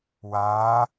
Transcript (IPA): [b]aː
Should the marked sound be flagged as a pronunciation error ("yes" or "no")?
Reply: yes